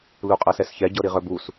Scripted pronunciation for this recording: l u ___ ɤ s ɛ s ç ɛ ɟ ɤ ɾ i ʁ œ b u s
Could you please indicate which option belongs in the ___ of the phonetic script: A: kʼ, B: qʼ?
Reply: B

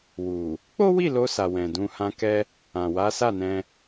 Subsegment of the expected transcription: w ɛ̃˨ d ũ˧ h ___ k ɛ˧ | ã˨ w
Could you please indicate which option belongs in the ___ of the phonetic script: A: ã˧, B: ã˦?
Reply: A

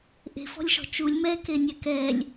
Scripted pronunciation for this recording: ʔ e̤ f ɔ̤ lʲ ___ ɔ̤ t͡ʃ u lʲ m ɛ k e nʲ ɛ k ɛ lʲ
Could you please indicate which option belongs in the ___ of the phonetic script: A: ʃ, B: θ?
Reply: A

